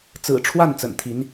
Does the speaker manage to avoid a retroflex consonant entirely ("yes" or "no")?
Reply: no